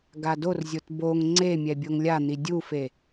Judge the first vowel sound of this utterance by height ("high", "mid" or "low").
low